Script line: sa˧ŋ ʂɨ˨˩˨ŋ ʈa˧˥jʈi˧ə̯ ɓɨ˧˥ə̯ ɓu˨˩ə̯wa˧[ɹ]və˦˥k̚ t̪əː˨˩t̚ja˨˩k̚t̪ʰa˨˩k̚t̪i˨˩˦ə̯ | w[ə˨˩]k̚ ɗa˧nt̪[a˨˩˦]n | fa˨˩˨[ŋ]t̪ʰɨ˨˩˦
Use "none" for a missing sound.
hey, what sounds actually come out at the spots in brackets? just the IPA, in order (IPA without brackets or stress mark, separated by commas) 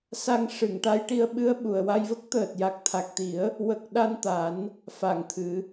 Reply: j, ə˨˩, a˨˩˦, ŋ